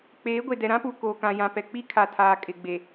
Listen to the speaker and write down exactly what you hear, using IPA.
k͡p eː˨˦ ɡʷ e˨ d ɛ˨ ɾ ã˦ p u˨ k oː˨ k ã˨ j ã˨ p ɛ˨ k͡p i˦ kʰ a˨ tʰ aː˨ kʼ ɪ˨ ɡ͡b e˨

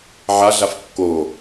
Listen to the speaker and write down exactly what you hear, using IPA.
ʕ a ɮ a f kː o

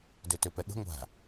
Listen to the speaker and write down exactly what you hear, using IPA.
d ø t ø p ɛ ɠ ə̤ ŋʷ a̤

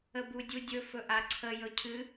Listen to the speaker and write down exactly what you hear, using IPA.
ə b u dʲ u dʲ ɵ f ɵ ʔ a ǀʰ ə j ɵ cʰ ɨ

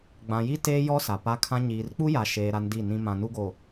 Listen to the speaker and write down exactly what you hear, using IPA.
ɡ͡b ã˨ j i˦ t eː˦ j ɔ˦ s a˨ p a˦ kʰ ã˦ ɲ iː˨ r k͡p u˦ j a˨ ʃ eː˨ ɾ a˦ n d i˦˨ n ĩ˦ m ã˨ n u˦ ɡ o˨

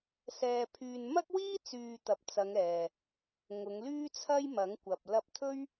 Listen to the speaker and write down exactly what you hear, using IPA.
s ɛː˧ pʰ yː˧ n m ɐ˥ k̚ w iː˥ t͡s yː˧ t̪ ɐ˨ p̚ t͡s ɐ˨˧ ŋ ɛː˨ | ŋ ʊ˨˧ ŋ l yː˥ t͡sʰ ɐ˥ j m ɐ˨˥ ŋ kʷ ɐ˨ p̚ l ɐ˧ p̚ t̪ʰ ɵ˥ ɥ

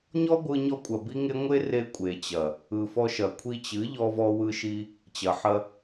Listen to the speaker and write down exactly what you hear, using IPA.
ɲ ɔ˦ ɡʷ ɯ˧ ɲ ɔ˧ kʷʼ ɐ˨ b i˦ ŋ e˦ ŋʷ e˦ r e˧ kʷʼ e˨ t͡ɕ ɐ˨ | ɯ˨ f ɔ˧ ʃ ɐ˨ kʷʰ i˧ t͡ɕ ɨ˨˦ ʎ ɔ˧ v ɔ˧ w ɯ˧ ʃ i˧ | t͡ɕ ɐ˨ ħ ɐ˧

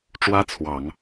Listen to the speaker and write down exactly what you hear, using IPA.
ʈ͡ʂ w ä˥ t͡sʰ w ɑ˨˩˦ ŋ

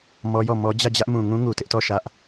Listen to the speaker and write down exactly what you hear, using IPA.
m ɔ˦ j ɔ˦˨ m ɔ˦ d͡ʑ ä˦˨ d͡ʑ ä˦ ʔ m ũ˨ ŋ ũ˦ ŋ u˨ t ɪ˦ ʔ t ɔ˦˨ ʃ ä˦ ʔ

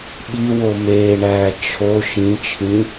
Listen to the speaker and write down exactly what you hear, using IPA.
ɓ i w o m eː ɳ æː t͡ʃʰ o ʃ ĩ t͡ʃʰ ĩ

